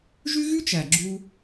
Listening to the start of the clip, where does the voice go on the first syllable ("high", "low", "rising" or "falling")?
high